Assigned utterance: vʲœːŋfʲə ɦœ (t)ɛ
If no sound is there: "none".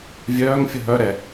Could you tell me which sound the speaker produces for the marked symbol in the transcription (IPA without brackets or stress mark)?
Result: ɾ